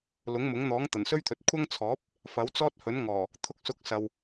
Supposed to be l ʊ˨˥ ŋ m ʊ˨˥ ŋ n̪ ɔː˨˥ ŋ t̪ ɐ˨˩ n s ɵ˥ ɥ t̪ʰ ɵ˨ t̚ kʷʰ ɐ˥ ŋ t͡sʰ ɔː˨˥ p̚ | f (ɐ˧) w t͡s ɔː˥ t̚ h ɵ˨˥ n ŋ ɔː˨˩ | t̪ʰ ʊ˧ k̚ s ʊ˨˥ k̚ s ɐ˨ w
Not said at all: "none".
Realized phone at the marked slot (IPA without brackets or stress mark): ɐ˨˥